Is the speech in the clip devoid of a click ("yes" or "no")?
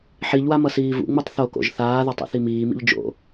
yes